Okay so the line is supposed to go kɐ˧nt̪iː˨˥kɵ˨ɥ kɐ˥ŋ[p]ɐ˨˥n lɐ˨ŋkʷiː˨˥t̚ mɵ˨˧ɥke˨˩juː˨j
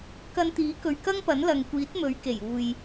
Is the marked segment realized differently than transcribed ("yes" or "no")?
no